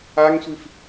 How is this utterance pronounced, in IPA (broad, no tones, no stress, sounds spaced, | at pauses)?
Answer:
a ŋ sʷ i f